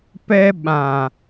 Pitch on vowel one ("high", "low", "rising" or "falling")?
high